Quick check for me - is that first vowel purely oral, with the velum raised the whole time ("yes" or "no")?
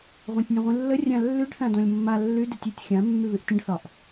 no